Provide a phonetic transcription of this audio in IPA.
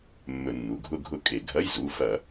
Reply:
mː ɵ˧˩˧ nː u˩˧˩ ɡʱ ʊ˥˧ ɡʱ ʊ˥˧ kʼ e˧˩˧ ɡʱ ɐ˧˥˧ j z u˩˧˩ f ɐ˧˩˧

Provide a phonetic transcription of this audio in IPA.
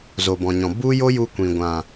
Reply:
z o˨ b ɔ̃˨ ɲ ɔ̃˨ b u˦ j o˦ j u˧ kʷ ĩ˨ ɡʷ ã˨

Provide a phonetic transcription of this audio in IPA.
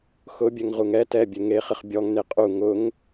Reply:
x ʊ bʲ ɛ ŋ ʁ u ŋ ɛ t ɛ bʲ e ŋ e χ ɪ χ bʲ ɔ ŋ n e qʼ u ŋ ʊ ŋ

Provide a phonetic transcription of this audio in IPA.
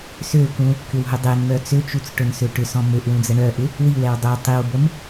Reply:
s ø k ũ | k ʏ w ɦ ø dˤ e n m œ t͡s ø t͡ʃ u t͡s ʈ ʊ n s ø ʈ ʏ s ɔ̃ m ø ʔ w ũ d͡z ə ɳ œ ʔ ɪ | w i w ɛ w dˤ œ tˤ i w b ə m

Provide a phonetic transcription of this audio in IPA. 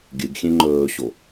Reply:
ɡʲ ɨ ɡ xʲ ẽ ŋ͡ǃ ɵː ɕ o

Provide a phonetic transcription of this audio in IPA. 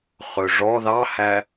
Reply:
χ ɵ ʐ ɔ ð ɑ h æ

